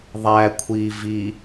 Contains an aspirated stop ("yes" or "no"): yes